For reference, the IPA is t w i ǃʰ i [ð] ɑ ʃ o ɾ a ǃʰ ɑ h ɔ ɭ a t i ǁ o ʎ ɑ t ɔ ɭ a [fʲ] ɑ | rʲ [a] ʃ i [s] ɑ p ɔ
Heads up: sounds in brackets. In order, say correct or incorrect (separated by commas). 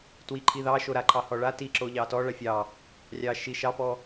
correct, correct, incorrect, incorrect